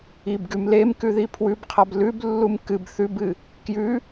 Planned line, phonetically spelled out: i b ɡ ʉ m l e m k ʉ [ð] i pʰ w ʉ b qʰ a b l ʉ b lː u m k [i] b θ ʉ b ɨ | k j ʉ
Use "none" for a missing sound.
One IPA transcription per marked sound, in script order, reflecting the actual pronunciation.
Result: ð, ɨ

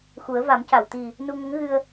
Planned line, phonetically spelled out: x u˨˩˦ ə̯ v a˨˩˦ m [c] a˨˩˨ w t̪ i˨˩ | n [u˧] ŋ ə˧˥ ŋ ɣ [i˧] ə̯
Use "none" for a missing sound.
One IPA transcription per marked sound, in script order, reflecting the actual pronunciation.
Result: c, u˧, ɨ˧

